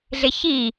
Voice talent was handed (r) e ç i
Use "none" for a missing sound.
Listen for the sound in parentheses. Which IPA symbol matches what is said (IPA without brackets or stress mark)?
ɮ